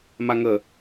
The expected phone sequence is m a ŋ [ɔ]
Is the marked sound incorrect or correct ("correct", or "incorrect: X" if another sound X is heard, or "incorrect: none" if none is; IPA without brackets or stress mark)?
incorrect: ə